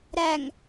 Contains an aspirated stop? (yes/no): no